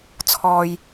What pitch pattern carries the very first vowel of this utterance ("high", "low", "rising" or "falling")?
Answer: low